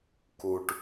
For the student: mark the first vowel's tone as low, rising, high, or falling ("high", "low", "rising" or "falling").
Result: low